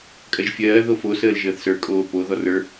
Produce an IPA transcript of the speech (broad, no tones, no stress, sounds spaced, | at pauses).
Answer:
kʼ ɜ ʒ fʲ ɜː ð o f o s əː l ʒ əː θ s ə˞ kʼ oː p o ð ɔ r ə˞